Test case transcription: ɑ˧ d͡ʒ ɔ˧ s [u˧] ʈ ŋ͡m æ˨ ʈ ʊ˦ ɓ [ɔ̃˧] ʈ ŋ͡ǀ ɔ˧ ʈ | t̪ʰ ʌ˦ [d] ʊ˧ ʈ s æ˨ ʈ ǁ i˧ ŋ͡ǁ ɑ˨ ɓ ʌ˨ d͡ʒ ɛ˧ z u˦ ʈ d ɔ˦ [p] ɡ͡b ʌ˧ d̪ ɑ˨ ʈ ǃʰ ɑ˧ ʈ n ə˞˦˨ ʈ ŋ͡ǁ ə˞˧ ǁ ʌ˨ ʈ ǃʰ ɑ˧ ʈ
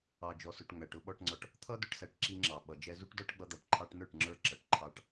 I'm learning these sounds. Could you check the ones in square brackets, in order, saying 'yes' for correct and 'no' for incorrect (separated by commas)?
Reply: no, no, yes, no